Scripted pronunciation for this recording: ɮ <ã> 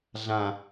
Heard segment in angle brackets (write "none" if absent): ã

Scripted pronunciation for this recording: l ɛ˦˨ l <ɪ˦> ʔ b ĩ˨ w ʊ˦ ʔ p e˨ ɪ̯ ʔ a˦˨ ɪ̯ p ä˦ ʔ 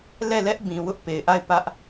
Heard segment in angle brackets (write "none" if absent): ɛ˦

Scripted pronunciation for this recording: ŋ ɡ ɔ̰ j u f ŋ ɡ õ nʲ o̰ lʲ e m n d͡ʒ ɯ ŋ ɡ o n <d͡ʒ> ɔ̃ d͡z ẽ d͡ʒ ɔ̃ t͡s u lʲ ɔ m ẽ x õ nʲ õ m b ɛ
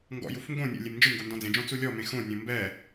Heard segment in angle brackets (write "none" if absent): d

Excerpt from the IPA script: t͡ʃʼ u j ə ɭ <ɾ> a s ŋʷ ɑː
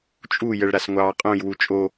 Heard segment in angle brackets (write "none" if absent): ɾ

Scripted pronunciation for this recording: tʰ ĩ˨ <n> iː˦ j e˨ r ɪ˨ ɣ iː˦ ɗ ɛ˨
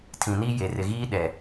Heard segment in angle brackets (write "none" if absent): n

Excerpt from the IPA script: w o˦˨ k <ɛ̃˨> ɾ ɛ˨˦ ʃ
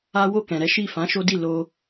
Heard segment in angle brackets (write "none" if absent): ɛ̃˨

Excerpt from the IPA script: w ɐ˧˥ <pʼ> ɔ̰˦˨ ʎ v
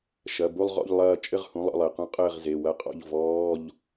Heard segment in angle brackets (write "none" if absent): qʼ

